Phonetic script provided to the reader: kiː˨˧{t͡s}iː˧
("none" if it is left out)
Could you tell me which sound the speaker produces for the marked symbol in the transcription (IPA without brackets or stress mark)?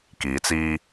t͡s